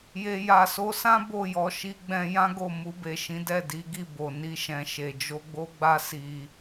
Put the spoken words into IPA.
je˨ja˨so˧sã˦ bo˦˨jɔ˧ʃi˦ ɡ͡bɛ̃˧ jã˦ɡo˦˨ mu˧be˨ʃĩ˨˦ dɛ˦˨di˨˦ɡi˦˨bo˨ ni˧ʃɛ̃˨ʃe˨ d͡ʒo˧ɡ͡bo˦ɡ͡ba˦ si˧

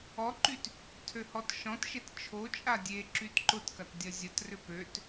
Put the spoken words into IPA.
ɔǃyt | tʰøhɔtʃɔ̃tʃet t͡ʃʰot͡ʃʼa dʲe ǁytǃʊtkɐt dʲɐzʲɐtrʏ pøt

